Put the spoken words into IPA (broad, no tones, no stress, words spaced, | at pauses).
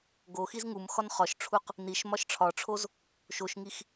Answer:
ɡoxiz ŋum xɒnχɒʃʈ͡ʂʰuq | niʃ mɒʃʈ͡ʂʰɒʈ͡ʂʰoz | ʃoʃŋix